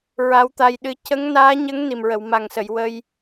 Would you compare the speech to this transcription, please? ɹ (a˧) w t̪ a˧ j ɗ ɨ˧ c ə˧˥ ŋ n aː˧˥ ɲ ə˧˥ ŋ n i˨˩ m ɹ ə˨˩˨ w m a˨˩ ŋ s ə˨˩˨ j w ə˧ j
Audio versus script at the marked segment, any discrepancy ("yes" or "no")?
yes